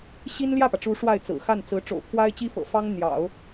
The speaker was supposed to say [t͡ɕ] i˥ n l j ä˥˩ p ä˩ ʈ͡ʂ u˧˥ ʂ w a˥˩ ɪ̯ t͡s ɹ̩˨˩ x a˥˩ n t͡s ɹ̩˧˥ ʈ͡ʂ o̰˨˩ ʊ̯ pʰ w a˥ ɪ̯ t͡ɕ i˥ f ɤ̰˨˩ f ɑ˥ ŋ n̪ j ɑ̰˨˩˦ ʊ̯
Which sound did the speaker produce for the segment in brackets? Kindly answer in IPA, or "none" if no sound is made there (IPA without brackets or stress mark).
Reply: ɕ